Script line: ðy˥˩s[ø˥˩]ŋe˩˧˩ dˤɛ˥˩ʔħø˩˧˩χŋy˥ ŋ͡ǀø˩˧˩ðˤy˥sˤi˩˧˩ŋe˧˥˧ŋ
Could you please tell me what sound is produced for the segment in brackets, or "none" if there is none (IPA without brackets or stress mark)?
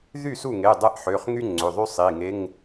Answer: u˥˩